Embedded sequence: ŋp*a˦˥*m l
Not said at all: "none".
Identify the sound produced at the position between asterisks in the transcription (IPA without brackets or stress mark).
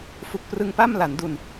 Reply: a˥˩